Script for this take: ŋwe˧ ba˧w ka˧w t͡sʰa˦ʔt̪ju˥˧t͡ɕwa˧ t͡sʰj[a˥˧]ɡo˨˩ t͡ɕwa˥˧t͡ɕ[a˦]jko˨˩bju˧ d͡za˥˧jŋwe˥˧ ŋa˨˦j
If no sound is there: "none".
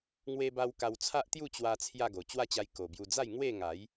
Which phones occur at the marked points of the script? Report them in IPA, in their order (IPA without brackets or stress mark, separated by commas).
a˥˧, a˧